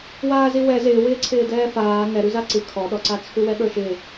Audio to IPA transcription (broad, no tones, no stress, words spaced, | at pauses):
waːziwɛ zɪːwɪːǀʰɪː dɛːfaː ŋɛɾʉza ǀɨ kʰɔɗɔǀa t͡sʰʉwɛɠə˞ʃɪ